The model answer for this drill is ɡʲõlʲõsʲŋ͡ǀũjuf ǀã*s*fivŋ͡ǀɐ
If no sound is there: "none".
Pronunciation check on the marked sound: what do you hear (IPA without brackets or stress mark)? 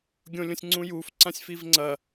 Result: sʲ